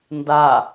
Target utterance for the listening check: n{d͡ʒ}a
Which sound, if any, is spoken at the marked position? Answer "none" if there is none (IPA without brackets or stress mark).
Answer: d